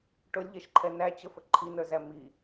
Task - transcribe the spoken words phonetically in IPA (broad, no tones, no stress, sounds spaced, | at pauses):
ʈ ʊ lʲ ʎ ɛ ʃ ǃʰ ɛ n æ t͡ɕ ə f ə ǃʰ i n ə˞ z æ m i